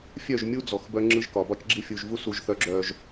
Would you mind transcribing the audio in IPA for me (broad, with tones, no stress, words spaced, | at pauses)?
fʲœ˦˨ʒmʲu˦ d͡zɔ˨xbœ˦ ŋ͡ǁɯ˦ʒkɒ˨ bɒ˦t͡ʃɡ͡ǁi˦ fʲu˨ʒ vu˦ su˨ʒθœ˨ ɡ͡ǁœ˨ʒ